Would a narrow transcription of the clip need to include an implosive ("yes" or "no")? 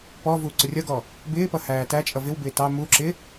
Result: no